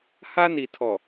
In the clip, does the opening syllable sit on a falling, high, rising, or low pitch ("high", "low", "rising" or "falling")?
high